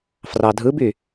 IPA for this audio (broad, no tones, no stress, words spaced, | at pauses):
frɑdʱɯby